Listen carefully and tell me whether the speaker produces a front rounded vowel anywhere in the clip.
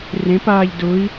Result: no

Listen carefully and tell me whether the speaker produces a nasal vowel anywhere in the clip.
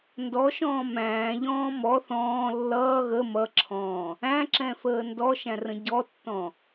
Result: yes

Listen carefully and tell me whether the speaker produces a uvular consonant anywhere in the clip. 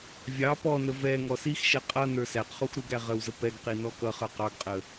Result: yes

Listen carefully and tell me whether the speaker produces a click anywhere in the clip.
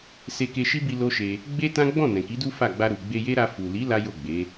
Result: no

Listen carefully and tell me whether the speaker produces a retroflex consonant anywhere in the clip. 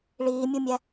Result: yes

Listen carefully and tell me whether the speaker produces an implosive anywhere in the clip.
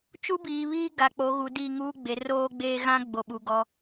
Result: yes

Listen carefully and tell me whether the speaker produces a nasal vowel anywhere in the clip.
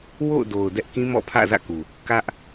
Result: yes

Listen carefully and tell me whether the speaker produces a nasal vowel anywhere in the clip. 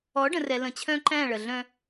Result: yes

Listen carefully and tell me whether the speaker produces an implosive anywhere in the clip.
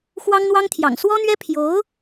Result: no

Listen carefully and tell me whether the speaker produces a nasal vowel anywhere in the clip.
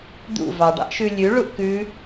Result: no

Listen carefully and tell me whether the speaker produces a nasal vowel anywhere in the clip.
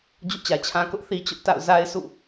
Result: yes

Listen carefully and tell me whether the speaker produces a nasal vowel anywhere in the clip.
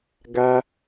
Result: no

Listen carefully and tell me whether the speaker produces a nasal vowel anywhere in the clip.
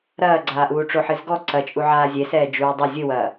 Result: no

